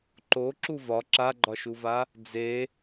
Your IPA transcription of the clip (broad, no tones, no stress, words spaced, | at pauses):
ǃoǁu vɒ ǁaɡ͡ǃɒʃuva | d͡ze